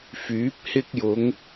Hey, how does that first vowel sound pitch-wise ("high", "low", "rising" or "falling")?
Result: rising